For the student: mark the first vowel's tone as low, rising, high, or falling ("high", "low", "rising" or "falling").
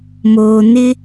low